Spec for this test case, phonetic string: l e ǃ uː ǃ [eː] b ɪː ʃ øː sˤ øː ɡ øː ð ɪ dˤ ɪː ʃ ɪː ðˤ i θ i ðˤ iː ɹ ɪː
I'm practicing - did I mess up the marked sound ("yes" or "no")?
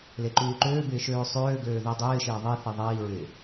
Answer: yes